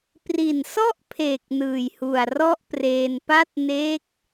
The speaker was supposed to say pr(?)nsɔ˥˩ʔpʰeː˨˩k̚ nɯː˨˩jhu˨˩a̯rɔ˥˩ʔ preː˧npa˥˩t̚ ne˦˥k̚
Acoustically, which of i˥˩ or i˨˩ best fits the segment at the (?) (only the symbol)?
i˨˩